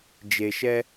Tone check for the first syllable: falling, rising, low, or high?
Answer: low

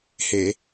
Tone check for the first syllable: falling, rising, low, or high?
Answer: low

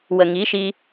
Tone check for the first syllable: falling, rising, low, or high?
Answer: low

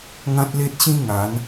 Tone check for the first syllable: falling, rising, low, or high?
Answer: high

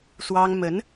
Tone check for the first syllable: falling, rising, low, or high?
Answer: high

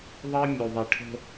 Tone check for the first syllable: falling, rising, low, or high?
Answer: high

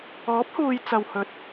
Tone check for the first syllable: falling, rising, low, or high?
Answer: rising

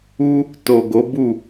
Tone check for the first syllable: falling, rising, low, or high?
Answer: high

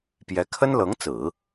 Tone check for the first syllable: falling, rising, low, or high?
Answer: rising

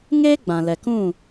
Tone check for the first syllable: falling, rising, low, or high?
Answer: high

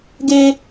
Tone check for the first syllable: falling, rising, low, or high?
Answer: high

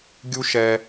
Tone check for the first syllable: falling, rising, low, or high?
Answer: high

